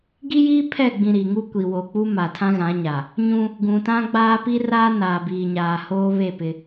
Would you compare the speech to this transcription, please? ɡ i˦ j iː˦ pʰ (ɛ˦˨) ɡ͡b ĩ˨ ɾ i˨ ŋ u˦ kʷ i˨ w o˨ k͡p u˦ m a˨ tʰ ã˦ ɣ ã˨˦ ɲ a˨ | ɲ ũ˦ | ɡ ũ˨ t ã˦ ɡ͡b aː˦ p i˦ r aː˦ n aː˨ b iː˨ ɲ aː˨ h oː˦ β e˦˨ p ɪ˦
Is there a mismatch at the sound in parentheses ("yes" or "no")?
no